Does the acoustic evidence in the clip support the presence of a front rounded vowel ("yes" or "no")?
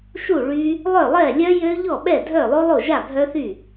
yes